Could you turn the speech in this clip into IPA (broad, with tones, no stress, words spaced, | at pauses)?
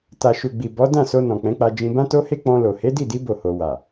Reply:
ta˨ʃu˨ɡ͡bi˨ bɔ˨˦dã˦˨so˧ nɔ̃˨k͡pɛ̃˨˦k͡pa˧ d͡ʒĩ˧bã˦to˦he˦ k͡pɔ̃˧lo˨ he˨˦di˦˨di˨˦ bo˦˨ho˧ wa˨